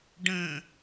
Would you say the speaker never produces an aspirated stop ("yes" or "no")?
yes